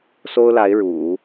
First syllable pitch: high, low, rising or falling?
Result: high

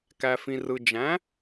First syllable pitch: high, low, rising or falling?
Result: low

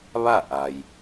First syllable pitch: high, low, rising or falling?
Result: falling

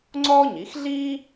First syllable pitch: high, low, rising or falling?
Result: high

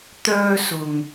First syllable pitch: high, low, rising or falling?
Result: high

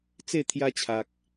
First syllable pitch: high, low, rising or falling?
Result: falling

